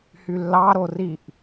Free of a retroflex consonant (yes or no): yes